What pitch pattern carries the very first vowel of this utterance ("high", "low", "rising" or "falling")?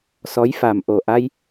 rising